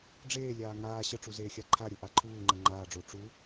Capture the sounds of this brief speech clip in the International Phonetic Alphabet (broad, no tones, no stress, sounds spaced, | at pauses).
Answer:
ɖ͡ʐ eː lʲ aː ŋ aː ɕ ə ʈ͡ʂ u z eː xʲ a ǃʰ a ɾʲ o ʔ a ǃʰ uː ŋ͡ǃ ɐ ŋ͡ǃ aː ɖ͡ʐ o ʈ͡ʂ u